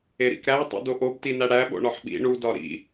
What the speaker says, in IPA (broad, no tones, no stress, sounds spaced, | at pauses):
e ɾ ḭ k ɾ æ tˤ ḭ d o ʔ o b t i n æ ɽ æ ɓ o̰ ɳ ɒ ħ ɓ ḭ ɳ u d ɒ ɾ ḭ